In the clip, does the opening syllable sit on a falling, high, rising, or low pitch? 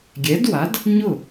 rising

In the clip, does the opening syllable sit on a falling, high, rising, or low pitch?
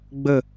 falling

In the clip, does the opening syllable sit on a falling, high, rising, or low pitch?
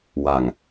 low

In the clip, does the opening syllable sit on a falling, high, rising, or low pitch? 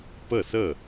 falling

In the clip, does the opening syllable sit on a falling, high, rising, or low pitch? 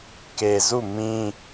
low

